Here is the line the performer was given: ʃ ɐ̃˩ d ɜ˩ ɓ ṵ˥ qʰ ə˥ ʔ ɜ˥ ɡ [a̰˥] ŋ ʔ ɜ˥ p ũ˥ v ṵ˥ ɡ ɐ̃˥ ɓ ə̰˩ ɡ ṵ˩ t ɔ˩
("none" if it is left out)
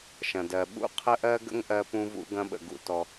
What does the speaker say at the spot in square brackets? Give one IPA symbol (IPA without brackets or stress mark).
ə̰˥